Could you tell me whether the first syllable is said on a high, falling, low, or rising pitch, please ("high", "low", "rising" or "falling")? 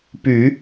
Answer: low